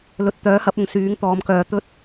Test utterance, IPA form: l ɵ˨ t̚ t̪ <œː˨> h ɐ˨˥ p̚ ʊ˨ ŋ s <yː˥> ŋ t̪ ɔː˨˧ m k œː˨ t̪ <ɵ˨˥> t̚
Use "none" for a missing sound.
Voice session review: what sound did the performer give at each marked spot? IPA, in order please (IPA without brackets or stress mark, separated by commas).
œː˨˥, yː˨˥, ɵ˥